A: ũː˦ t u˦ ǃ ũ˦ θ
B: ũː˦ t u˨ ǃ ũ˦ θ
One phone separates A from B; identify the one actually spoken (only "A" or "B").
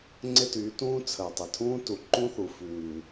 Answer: B